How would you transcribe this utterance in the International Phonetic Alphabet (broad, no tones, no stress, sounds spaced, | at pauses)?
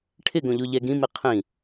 ʈʰ ɪ ɡ õ ʎ o ʎ ɛ ɡ ĩ m i qʰ ĩ